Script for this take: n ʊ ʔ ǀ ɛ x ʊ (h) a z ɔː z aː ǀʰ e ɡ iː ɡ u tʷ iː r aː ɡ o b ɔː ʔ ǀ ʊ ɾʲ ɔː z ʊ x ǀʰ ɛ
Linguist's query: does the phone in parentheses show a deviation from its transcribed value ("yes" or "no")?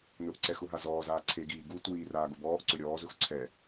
yes